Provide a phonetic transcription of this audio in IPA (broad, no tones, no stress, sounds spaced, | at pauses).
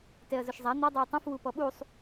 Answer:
t ɛ ɐ̯ z ʊ ʃ zˤ a n̪ i dˤ i ɐ̯ tˤ ĩ f w u p ɔ ɓ u sˤ